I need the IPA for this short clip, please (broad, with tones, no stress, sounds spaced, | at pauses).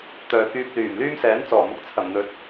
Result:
t̪ œː˨ k yː˧ p̚ l yː˨˩ m l yː˥ m s ɛː˨˥ n t͡s ɔː˨˩ m ʊ˨˥ k̚ t͡sʰ ɐ˨˩ m n̪ ɵ˨˥ t̚